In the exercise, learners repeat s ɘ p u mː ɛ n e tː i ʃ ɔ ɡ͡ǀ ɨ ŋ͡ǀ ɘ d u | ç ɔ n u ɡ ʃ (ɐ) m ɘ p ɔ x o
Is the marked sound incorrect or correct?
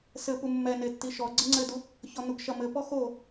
correct